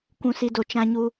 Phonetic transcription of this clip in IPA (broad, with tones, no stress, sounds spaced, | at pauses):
kʷ ũ˦ s i˦ d o˦˨ t͡ʃ ã˦ ɲ u˦